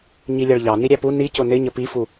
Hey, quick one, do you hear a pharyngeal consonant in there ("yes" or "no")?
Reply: no